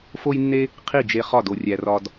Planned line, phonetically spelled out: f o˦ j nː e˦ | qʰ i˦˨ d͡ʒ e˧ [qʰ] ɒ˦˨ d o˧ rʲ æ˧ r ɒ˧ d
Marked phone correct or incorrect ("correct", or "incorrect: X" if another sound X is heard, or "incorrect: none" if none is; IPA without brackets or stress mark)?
incorrect: χ